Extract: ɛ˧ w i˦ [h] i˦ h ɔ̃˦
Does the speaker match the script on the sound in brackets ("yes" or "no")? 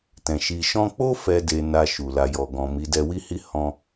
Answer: yes